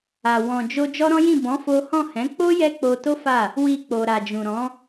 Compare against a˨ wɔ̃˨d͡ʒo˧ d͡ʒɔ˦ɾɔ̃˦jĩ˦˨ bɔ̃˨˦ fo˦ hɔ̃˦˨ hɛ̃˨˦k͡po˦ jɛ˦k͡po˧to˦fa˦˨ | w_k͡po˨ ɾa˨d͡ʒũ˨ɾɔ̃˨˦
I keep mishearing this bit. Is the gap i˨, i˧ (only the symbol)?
i˧